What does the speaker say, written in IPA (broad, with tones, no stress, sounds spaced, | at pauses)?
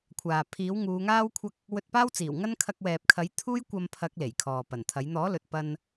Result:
kʷʰ aː˨ pʰ iː˨˥ w ŋ uː˨˧ ŋ aː˥ w kʷʰ ɐ˥ k̚ | w ɵ˧ t̚ p aː˥ w t͡s iː˨˩ w ŋ ɐ˥ n kʰ ɐ˧ k̚ w ɛː˨ p̚ kʰ ɐ˨˥ j t̪ʰ uː˥ j kʷ ɐ˧ m pʰ ɐ˨˥ k̚ l e˨˩ j kʰ ɔː˨ p ɐ˨˩ n t̪ʰ ɐ˨˥ j n̪ ɔː˨˥ l ɵ˨ t̚ p ɐ˧ n